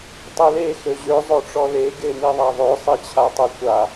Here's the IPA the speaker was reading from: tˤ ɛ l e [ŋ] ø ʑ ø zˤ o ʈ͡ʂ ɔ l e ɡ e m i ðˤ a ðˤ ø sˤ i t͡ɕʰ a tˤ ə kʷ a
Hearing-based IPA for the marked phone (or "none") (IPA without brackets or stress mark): x